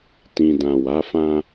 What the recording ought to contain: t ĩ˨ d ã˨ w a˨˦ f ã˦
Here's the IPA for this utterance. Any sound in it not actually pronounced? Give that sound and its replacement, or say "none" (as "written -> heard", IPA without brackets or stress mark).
none